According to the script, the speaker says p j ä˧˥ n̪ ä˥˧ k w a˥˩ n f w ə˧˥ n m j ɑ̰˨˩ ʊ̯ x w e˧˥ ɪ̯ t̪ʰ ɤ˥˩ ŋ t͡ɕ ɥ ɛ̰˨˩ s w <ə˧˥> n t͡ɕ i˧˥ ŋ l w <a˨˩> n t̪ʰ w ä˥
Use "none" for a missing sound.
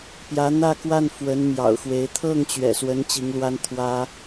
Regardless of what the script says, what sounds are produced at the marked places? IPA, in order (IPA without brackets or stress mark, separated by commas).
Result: ə˧˥, a˥